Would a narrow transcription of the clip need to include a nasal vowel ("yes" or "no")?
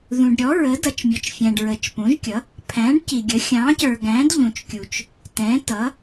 yes